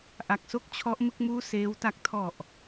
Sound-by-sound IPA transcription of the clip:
ʔ a˨˩ k̚ s o˦˥ k̚ t͡ɕʰ ɔ˦˥ ʔ m ɯ˥˩ k̚ m uː˥˩ s eː˦˥ w t a˥˩ k̚ tʰ ɔ˨˩ ʔ

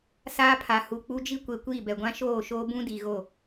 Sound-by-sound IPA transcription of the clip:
s aː˦ pʰ a˨ h u˨ k͡p u˦ d͡ʒ i˦ kʷ e˨ kʷ iː˦˨ b ɛ˨ ɡʷ ã˦ ʃ oː˦˨ ʃ oː˦ b ũ˦ d i˨ ɣ o˦˨

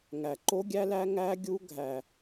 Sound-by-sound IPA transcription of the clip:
ŋ æ˨ ǃ o˦ ɡʲ æ˦ l æ˦ ŋ æ˦ ɡʲ u˦ ɡʱ æ˦

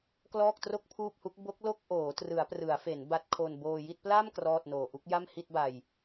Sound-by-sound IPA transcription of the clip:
k l ɔː˥˩ k̚ t r o˥˩ k̚ pʰ uː˥˩ p̚ h u˦˥ k̚ b o˦˥ k̚ l o˥˩ k̚ ʔ oː˩˦ t r ɯ˩˦ a̯ p r ɯ˩˦ a̯ f e˩˦ n b a˦˥ t̚ kʰ o˧ n b oː˧ j i˥˩ t̚ p l a˥˩ m k r ɔː˥˩ t̚ n oː˨˩ ʔ u˥˩ k̚ j a˥˩ m h i˥˩ t̚ b a˧ j

